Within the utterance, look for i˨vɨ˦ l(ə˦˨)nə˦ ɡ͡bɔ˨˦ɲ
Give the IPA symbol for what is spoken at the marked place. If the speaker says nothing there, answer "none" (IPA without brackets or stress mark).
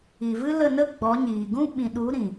ə˦˨